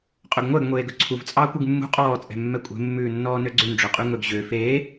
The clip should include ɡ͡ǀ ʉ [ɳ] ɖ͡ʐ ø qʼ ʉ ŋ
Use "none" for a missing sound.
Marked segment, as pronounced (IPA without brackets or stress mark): n